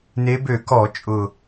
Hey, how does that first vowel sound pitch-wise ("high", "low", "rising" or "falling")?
rising